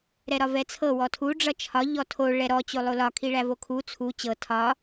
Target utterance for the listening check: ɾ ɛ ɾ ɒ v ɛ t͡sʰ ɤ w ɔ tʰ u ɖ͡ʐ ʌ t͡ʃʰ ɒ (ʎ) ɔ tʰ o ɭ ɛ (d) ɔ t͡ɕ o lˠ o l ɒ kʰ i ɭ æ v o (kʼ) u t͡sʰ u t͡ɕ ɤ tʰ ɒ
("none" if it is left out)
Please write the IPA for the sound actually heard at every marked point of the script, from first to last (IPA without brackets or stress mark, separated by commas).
ʎ, ɾ, kʰ